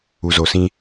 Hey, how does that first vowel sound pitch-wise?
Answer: low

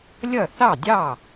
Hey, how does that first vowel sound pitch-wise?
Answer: falling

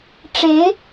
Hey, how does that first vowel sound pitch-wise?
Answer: rising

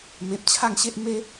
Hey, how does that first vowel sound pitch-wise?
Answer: low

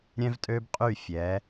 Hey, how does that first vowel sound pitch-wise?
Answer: high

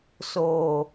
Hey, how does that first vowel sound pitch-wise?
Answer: low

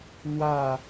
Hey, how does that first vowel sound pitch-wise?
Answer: falling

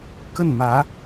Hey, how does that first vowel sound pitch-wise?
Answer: falling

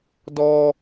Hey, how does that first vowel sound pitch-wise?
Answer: low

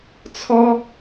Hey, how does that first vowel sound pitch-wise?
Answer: high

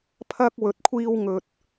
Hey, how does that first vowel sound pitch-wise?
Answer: high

